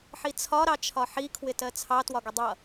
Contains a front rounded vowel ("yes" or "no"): no